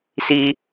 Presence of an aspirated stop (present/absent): absent